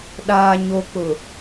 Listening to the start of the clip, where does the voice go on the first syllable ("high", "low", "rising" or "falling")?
low